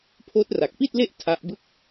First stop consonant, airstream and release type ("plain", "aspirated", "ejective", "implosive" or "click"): aspirated